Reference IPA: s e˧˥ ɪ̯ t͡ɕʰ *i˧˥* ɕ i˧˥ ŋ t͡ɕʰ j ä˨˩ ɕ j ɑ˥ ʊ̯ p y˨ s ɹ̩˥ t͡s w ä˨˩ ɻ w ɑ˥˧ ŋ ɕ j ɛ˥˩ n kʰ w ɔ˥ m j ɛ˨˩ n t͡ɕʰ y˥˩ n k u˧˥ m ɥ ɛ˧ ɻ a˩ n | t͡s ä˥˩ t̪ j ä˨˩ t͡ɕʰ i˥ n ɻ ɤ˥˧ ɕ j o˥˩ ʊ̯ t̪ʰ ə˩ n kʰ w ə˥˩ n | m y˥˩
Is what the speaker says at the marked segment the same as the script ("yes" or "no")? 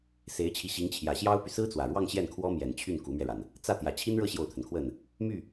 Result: yes